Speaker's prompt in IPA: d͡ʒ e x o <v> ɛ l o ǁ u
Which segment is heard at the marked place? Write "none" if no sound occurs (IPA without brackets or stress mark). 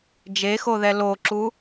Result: ð